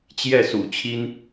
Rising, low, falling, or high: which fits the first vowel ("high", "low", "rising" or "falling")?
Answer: falling